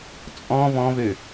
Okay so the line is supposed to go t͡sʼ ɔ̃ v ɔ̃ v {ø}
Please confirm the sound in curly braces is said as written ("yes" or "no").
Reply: yes